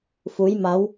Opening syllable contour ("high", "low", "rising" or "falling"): rising